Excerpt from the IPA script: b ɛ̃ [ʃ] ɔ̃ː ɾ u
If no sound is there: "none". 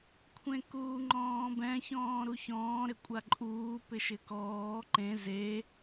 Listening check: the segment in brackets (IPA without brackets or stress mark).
ç